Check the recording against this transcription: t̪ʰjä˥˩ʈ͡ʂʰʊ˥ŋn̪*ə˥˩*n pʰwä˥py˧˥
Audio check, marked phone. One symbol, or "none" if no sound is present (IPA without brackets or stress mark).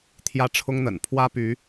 ə̰˨˩